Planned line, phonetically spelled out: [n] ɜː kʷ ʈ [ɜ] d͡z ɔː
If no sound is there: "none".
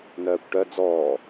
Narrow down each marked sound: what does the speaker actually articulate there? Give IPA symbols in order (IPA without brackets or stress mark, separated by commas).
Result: n, ɜ